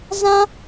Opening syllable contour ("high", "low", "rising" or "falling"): high